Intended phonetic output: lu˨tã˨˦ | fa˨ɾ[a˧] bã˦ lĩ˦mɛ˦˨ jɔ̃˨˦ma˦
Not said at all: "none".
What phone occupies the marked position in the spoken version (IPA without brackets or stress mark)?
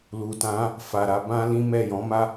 a˧